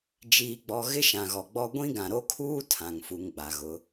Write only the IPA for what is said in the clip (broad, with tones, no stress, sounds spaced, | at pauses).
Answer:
d͡ʒ iː˨ ɡ͡b ɔ˨ ɣ ɪ˦ ʃ ã˨ ɣ ɔ˨ ɡ͡b ɔ˦ ɡʷ ĩ˦ ɡ ã˨ ɾ o˦ kʰ uː˦ tʰ ã˨ ŋ f u˨ ŋ ɡ͡b a˨ ɣ ʊ˨˦